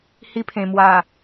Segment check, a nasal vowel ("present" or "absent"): present